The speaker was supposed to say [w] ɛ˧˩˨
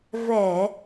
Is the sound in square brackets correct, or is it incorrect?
incorrect